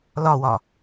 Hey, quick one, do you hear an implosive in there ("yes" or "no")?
no